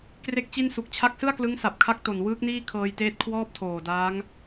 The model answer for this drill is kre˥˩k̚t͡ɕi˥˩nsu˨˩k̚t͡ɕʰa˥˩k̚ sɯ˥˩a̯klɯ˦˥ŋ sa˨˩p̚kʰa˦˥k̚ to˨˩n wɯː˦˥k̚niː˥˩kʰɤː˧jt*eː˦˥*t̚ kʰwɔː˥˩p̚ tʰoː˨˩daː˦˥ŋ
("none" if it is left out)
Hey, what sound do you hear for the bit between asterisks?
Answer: eː˦˥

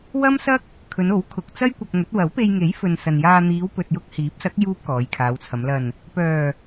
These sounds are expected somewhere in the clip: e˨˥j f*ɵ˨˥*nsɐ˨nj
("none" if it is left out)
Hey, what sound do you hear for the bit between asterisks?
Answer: ɵ˨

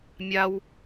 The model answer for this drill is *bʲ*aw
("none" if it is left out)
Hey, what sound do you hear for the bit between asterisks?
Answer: mʲ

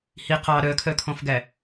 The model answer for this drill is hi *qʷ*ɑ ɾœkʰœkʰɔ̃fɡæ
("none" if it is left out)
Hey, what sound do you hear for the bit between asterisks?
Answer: q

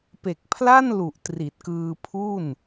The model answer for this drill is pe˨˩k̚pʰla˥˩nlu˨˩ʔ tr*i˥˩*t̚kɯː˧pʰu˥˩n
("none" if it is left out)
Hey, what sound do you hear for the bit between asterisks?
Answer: i˨˩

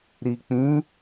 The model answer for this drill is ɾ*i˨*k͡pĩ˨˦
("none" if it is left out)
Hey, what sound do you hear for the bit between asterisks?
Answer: i˨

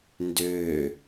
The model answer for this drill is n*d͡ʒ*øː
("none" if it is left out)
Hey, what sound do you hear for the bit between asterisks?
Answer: d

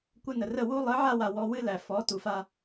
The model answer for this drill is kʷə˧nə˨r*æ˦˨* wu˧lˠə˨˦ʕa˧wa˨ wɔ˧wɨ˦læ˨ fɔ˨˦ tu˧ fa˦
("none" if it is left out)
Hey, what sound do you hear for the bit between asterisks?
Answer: ə˦˨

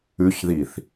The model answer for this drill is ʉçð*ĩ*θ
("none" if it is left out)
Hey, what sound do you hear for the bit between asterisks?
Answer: i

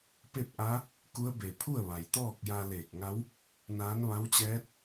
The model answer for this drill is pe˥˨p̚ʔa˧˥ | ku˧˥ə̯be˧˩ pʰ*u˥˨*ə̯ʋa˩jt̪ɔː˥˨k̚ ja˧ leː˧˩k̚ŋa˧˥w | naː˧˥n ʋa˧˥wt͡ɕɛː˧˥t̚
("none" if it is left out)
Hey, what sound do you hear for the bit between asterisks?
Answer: u˥˨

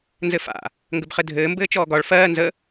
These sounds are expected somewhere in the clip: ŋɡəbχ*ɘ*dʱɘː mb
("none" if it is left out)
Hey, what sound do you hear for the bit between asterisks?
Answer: ɘ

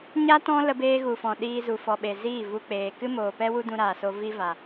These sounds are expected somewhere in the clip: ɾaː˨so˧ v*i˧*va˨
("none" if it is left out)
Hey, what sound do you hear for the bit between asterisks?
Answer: i˧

